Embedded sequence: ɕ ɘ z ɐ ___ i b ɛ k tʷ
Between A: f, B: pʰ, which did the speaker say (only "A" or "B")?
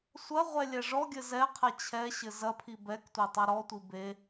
B